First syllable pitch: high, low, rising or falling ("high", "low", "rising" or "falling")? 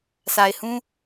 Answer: low